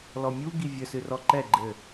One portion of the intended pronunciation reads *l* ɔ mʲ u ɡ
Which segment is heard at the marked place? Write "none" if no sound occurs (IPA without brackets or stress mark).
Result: l